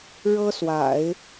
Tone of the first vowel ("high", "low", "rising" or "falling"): high